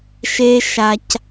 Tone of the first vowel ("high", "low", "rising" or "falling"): high